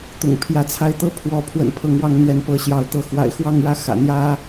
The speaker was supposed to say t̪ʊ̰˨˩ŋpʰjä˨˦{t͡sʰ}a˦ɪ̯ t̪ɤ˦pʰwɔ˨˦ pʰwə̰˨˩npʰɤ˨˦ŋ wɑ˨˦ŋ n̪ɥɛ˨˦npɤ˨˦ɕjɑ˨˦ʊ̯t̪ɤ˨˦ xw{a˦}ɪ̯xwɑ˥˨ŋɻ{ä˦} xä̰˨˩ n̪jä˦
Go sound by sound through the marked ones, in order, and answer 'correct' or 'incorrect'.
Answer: correct, incorrect: a̰˨˩, correct

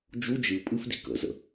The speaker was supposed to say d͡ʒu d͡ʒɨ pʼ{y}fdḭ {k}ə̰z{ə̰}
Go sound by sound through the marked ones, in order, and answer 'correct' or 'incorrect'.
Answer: incorrect: ɨ, correct, correct

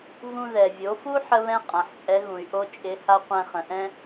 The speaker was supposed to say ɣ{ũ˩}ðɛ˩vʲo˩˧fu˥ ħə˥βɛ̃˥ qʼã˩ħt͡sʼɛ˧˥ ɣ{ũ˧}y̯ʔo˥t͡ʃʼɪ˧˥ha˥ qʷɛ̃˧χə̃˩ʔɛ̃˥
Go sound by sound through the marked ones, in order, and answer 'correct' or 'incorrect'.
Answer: incorrect: ũ˧, incorrect: ũ˩

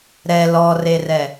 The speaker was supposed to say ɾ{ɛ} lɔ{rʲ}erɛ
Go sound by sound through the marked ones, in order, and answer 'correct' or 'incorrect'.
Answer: correct, incorrect: r

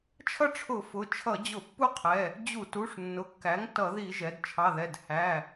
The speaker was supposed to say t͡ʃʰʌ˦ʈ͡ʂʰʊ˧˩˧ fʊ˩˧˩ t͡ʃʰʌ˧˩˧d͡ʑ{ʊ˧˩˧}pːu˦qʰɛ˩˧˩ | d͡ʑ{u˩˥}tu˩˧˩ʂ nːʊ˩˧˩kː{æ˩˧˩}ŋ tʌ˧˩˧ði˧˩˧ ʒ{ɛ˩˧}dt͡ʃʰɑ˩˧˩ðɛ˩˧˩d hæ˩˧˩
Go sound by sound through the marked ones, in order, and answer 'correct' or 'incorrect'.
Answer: correct, incorrect: u˧˩˧, incorrect: æ˩˥, correct

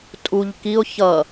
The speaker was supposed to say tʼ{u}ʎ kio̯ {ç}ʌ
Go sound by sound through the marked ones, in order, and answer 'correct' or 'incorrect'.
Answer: correct, correct

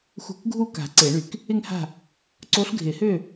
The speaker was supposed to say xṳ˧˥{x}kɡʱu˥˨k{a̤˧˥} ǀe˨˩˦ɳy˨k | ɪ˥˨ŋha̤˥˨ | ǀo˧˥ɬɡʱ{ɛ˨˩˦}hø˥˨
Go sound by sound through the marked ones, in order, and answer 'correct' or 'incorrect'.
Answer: incorrect: none, incorrect: a̤˨˩˦, incorrect: ɪ˨˩˦

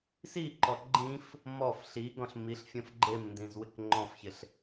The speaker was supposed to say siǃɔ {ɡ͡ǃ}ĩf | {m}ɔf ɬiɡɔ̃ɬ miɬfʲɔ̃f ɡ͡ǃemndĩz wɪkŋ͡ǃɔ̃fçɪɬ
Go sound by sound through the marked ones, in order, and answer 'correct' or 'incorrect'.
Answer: correct, correct

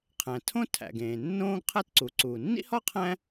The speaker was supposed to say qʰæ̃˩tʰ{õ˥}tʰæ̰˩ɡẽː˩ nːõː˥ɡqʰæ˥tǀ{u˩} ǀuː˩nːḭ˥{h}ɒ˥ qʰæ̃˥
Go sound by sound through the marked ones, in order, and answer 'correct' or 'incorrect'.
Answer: correct, correct, correct

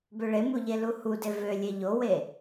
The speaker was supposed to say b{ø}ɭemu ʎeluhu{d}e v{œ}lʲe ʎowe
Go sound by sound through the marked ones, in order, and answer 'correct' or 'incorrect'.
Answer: correct, correct, incorrect: ø

